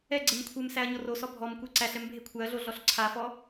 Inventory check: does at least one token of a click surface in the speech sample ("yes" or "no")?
yes